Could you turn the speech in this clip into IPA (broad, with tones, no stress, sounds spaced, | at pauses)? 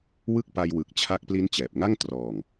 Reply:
w ɯ˥˩ k̚ p a˧ j w ɯ˨˩ k̚ t͡ɕʰ a˦˥ k̚ p l i˦˥ n t͡ɕ ɛː˨˩ p̚ ŋ a˥˩ ŋ t r ɔː˨˩ ŋ